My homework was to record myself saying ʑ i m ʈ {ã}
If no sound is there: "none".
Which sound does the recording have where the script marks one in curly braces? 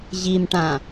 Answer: ã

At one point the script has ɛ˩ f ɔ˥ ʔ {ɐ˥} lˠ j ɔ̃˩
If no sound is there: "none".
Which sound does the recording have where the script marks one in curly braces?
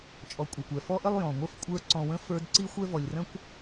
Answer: ə˥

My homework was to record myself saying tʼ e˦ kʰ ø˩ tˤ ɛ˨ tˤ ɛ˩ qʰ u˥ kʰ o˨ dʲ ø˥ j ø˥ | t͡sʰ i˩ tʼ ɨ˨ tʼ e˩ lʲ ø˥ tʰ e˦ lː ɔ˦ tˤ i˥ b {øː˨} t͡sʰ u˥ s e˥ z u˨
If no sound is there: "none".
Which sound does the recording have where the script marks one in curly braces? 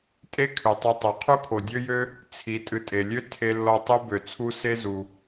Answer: ø˨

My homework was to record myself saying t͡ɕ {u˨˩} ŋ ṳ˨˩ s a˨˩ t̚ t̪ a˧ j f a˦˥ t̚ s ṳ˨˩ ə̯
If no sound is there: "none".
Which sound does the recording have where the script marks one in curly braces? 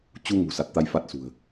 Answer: u˧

